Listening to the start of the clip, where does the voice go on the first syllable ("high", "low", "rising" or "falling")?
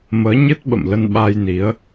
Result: rising